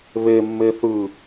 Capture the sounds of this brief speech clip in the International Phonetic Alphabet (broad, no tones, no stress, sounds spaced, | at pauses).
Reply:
β e mː e θ ɯ